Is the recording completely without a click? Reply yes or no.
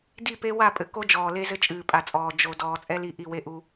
yes